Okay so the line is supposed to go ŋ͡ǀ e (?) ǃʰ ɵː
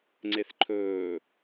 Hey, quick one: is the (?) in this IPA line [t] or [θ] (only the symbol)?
θ